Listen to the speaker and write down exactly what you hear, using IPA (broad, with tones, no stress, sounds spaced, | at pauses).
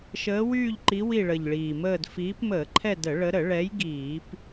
ʃ əː˨˦ w yː˦˨ ʎ ǃ i˨˦ w i˦˨ ɭ ə˨˩ ʎ ɭ iː˨˩ m əː˦˨ d f iː˨˦ p m əː˧˩˧ ǃʰ ɛ˦˨ d ə˧˩˧ ɭ ə˨˦ ɾ ə˧˩˧ ɭ ɛ˨˦ j ɡ iː˧˩˧ p